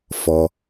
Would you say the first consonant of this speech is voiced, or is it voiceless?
voiceless